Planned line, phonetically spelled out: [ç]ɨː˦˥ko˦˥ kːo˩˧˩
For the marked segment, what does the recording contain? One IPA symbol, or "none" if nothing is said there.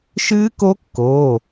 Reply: ʃ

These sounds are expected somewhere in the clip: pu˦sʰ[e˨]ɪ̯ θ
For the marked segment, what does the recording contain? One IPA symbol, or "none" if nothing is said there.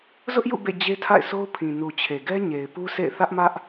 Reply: ḛ˦˨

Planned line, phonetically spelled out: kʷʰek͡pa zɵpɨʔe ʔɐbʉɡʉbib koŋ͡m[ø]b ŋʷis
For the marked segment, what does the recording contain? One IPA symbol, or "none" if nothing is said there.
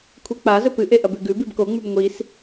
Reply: ʉ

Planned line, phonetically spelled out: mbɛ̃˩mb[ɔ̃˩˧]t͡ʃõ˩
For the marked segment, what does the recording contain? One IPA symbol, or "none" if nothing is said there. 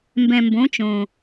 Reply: õ˩˧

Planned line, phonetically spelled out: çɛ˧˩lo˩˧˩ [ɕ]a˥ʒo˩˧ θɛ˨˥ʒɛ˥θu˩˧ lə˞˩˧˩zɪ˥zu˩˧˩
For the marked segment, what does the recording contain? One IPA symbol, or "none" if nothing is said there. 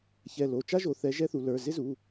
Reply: t͡ʃ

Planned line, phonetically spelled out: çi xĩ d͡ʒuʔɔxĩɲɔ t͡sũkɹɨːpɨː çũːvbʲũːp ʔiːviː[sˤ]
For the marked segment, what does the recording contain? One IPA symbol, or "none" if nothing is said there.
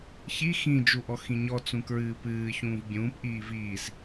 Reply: s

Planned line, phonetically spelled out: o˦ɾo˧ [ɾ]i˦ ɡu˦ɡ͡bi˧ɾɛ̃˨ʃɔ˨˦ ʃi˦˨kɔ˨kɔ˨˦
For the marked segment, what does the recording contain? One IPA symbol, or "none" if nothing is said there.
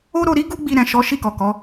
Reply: ɾ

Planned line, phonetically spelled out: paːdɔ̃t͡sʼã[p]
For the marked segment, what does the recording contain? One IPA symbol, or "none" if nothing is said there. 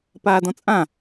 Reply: none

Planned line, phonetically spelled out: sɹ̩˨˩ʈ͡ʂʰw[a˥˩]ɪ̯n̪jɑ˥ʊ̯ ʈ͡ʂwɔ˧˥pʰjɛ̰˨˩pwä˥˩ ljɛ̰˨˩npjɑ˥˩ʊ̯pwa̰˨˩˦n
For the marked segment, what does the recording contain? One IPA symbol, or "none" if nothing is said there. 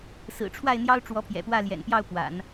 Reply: a˥˩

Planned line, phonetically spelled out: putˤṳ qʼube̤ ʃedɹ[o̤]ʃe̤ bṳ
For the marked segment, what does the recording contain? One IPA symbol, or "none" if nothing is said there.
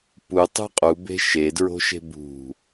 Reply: o̤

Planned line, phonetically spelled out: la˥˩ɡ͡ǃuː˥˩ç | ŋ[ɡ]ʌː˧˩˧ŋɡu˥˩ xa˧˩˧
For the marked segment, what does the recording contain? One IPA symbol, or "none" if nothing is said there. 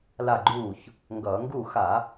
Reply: ɡ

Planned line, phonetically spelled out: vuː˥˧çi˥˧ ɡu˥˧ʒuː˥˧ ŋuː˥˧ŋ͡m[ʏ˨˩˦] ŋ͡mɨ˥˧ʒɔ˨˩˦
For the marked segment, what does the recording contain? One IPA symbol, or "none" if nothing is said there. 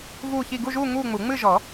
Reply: u˨˩˦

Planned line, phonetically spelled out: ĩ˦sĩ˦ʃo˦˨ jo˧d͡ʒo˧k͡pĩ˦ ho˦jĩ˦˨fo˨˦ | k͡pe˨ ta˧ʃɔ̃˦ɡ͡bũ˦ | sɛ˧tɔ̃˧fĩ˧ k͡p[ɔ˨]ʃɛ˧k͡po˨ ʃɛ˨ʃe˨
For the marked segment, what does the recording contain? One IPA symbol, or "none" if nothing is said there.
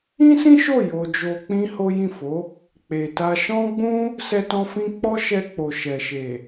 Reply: ɔ˦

